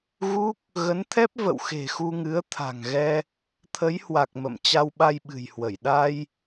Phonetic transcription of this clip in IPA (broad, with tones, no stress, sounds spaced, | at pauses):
ɣ u˦˥ k̚ | ɣ ə˨˦ n t̪ʰ ɛ˦˥ p̚ v ə̰˧˨ w x e̤˨˩ x u˧ ŋ ɨ˨˦ ə̯ t̪ʰ a̤˨˩ ŋ ɣ ɛ˧ | t̪ʰ ə˨˦ j h w a˨˩ k̚ m ə̰˧˨ m t͡ɕ a˧ w ɓ a˧ j ɓ ɨ̤˨˩ j h w ə˧˩ j ɗ a˧ j